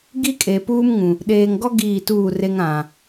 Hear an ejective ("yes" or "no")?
yes